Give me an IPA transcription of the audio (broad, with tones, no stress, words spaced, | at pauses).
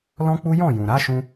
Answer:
lɔ̃˦k͡pu˦ jɔ̃˦˨ jũ˨ɾa˨˦ʃũ˧